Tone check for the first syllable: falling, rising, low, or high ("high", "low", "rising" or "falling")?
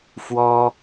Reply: high